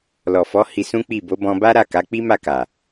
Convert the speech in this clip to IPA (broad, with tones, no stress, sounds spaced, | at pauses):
l ɔ˨ f ɔ˨˦ h i˧ s ũ˦ k͡p i˦˨ b o˨˦ b ɔ̃˧ b a˦ ɾ a˦˨ k a˨˦ k͡p i˦ m a˦˨ k a˨